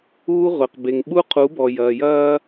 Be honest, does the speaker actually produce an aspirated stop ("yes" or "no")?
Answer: yes